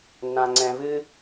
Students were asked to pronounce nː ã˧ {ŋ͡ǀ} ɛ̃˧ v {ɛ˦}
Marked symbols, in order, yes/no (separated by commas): yes, no